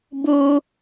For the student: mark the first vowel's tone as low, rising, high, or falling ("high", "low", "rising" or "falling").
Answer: high